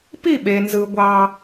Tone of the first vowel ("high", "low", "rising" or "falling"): falling